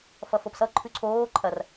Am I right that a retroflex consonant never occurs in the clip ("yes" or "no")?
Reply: yes